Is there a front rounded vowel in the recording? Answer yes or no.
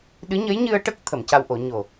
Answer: no